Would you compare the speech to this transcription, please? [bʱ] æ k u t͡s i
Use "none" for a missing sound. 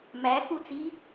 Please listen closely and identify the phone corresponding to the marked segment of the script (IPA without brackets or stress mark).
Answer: m